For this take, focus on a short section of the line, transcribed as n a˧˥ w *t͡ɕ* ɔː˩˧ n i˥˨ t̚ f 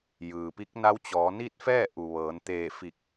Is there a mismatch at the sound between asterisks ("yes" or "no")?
no